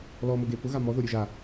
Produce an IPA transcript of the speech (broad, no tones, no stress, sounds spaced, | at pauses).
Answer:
l ɔ m ʊ ɡ e p ʊ ɣ a m ɔ ð o ɾʲ u ʒ a